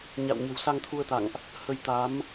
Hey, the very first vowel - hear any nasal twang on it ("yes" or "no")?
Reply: no